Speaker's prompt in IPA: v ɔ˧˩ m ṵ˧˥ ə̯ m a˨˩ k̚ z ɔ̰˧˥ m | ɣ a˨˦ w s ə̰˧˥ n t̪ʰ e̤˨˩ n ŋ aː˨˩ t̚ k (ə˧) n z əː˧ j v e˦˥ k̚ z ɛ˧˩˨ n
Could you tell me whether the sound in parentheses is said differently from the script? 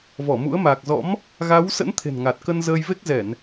no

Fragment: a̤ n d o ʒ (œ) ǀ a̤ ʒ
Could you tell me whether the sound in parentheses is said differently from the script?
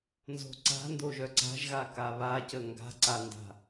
no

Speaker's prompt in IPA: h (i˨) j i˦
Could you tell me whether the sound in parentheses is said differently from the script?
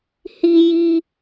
yes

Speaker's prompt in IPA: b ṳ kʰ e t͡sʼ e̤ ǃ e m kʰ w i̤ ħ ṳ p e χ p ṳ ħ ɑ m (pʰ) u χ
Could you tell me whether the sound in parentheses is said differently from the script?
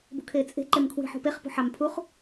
no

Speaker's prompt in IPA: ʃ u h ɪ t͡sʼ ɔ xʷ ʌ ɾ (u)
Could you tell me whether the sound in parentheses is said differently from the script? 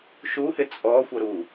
no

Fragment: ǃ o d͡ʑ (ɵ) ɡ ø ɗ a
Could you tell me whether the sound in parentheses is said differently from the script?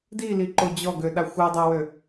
yes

